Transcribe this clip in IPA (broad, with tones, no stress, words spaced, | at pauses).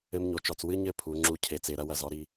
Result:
ɘ˦mɲo˨t͡ʃɔ˨t͡s wɨ˦ɲɘ˦˨ pʰu˨˦ŋ͡ǁu˦ cʰe˨t͡se˨ɾɐ˦wɐ˦˨z ɔ˦ɾi˦